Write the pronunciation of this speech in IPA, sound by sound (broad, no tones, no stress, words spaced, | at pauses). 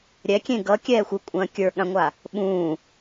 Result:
ɾʲɛkʲẽ ɡʌkʲɛːxʷ ʏkʷʼɐ̃ː kʲə˞ɠãŋʷa | ɓũː